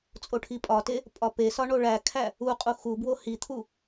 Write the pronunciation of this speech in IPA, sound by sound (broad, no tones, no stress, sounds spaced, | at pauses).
t͡sʼ o ʈʰ i pʼ ɒ t e | pʼ ɒ p e s ɒ ɳ o ɭ æ kʰ æ | u qʼ u x u b w o h i t̪ʰ u